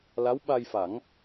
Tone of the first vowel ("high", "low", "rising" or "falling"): rising